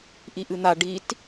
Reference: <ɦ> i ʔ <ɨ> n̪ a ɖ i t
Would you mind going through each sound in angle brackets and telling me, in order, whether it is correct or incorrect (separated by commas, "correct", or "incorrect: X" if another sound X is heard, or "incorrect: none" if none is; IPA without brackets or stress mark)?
incorrect: ʔ, correct